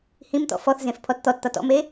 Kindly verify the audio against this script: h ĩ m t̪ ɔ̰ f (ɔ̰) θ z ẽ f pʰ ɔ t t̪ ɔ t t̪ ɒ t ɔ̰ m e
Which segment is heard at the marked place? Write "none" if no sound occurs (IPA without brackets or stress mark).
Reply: ɔ